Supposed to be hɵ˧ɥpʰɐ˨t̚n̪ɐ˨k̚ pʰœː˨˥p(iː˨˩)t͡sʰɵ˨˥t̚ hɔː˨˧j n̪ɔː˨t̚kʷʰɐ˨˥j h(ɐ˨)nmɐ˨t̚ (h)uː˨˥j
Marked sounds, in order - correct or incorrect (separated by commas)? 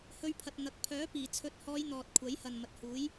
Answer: correct, correct, correct